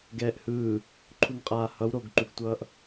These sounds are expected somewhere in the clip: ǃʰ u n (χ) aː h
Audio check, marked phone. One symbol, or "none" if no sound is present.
qʼ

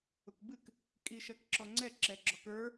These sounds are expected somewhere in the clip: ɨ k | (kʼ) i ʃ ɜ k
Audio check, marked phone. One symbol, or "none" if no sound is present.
kʼ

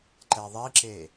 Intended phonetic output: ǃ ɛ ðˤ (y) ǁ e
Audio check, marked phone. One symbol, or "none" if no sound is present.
i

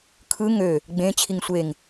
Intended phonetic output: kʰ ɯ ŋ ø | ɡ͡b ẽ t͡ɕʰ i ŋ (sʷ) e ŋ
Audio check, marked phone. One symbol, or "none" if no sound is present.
sʷ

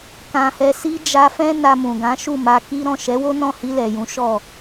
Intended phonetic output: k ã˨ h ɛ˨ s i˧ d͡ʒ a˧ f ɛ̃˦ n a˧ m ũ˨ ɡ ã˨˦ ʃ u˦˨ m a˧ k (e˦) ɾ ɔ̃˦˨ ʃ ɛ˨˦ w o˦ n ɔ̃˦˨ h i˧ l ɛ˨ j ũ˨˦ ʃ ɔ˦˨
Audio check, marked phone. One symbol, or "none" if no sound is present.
i˦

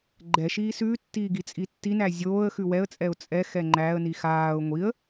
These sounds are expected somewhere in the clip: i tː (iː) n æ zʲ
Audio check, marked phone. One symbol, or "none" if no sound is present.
i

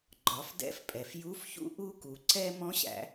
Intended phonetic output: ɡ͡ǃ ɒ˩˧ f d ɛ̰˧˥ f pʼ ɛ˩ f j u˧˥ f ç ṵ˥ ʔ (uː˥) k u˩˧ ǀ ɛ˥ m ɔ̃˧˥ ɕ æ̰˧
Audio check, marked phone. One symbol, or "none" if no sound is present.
u˥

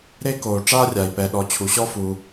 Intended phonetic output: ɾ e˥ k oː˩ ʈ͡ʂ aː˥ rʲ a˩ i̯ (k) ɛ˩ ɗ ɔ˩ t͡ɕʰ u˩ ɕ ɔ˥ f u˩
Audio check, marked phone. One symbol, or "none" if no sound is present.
p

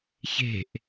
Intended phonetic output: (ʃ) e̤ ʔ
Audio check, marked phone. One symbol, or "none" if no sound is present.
ç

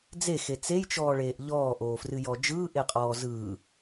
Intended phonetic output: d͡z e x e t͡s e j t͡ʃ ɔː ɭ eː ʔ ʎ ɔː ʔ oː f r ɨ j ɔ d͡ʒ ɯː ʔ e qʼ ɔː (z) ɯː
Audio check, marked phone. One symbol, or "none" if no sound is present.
z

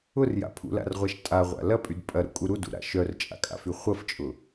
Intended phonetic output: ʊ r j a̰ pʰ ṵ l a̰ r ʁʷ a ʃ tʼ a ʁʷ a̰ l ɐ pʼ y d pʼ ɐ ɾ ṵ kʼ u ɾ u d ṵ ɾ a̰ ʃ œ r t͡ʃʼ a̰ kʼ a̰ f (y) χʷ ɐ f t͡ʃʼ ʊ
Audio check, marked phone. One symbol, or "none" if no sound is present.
y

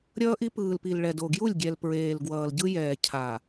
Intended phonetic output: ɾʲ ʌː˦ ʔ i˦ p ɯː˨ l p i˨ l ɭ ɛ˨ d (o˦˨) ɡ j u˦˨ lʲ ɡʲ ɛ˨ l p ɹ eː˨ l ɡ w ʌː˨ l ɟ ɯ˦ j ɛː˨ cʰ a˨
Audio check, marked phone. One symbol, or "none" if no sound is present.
o˨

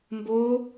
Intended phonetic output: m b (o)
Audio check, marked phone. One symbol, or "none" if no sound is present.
o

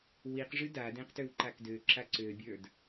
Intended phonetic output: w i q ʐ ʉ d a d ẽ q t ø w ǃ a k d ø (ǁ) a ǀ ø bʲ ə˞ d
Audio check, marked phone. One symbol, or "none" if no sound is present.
ǁ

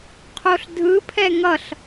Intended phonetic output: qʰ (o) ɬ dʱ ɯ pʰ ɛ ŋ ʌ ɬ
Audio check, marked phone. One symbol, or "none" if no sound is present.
o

